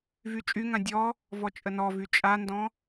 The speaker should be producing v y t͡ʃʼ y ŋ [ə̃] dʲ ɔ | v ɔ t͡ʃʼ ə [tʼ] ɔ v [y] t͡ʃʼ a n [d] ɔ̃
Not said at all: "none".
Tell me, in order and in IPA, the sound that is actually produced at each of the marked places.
ã, n, y, d

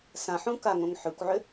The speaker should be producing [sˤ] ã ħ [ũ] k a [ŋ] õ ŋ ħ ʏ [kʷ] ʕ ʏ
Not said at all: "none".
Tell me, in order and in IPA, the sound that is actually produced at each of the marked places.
s, ũ, ŋ, kʷ

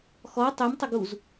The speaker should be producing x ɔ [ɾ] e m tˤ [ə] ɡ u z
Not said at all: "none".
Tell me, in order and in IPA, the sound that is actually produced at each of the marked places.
tˤ, ə

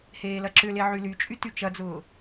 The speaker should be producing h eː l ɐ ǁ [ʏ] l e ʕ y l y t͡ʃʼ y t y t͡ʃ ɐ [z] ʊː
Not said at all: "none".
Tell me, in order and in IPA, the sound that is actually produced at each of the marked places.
ʏ, d͡z

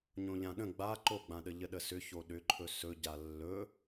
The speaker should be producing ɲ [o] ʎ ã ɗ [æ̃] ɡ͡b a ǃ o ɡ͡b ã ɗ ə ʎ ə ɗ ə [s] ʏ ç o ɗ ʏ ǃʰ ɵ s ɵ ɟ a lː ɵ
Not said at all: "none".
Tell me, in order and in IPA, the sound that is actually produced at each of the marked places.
õ, ə̃, s

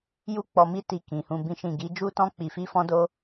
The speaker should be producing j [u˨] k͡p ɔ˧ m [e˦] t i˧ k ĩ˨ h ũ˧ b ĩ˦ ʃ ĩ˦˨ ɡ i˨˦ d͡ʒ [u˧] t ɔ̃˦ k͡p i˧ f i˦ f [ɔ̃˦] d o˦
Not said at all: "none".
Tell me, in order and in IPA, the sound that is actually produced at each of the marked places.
u˦, i˦, u˦, ɔ̃˦

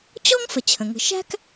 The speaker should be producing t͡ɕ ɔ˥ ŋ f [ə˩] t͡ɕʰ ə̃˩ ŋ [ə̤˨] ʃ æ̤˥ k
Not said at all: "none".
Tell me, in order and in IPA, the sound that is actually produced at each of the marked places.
ə˩, ə̤˨

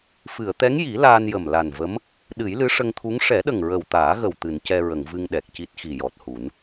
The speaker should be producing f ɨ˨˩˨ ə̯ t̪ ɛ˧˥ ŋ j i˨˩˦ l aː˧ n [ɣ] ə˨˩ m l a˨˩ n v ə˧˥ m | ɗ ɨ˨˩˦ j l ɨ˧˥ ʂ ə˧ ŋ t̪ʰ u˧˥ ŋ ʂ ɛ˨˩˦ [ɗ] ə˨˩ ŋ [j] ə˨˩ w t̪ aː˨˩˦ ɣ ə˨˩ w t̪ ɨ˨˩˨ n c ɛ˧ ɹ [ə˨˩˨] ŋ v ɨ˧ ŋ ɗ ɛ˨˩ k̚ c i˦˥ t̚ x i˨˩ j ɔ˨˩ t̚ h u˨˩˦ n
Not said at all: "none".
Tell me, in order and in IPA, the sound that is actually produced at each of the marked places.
j, ɗ, ɹ, ə˨˩˨

